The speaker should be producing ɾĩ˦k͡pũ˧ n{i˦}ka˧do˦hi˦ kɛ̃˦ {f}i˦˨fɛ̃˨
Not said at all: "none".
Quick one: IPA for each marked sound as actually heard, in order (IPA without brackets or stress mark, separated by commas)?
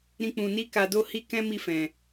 i˦, m